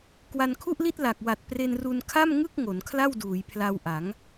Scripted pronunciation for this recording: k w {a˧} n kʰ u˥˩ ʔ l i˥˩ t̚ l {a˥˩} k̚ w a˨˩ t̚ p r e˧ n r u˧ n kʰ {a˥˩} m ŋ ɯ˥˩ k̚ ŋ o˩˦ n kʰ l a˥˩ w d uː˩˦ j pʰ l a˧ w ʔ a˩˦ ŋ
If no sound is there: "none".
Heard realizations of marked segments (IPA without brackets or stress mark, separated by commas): a˧, a˨˩, a˥˩